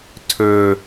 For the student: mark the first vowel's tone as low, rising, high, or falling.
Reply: high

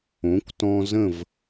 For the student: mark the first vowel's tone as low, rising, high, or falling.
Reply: rising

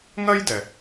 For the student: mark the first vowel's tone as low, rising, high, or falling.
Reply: high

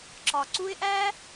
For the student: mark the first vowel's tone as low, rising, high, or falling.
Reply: low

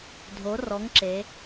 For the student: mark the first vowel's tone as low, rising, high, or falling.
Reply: rising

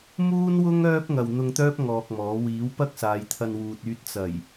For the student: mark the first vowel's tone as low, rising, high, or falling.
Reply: high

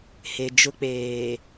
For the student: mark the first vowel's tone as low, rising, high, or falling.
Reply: low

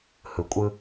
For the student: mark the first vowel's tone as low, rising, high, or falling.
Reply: low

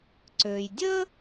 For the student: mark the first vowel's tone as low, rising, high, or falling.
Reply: low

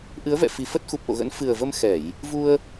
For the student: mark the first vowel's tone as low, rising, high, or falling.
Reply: rising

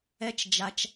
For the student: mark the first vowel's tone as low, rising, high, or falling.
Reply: rising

